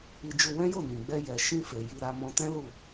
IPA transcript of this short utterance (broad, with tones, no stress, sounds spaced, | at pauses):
i˧ d͡ʒ u˧ w ɛ̃˦ j o˦˨ n ĩ˨ ɡ͡b ɛ˧ j ɛ˨ ʃ ĩ˧ f e˨ j i˧ ɾ a˧ m ɔ̃˧ t ɛ̃˦ l u˦˨